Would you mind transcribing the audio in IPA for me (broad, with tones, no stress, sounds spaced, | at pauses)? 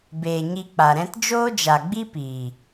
b eː˨ ɲ i˧ k͡p a˨ ɾ ɛ̃˦ t d͡ʒ oː˦ d͡ʒ a˨ ɡ͡b i˦ p iː˨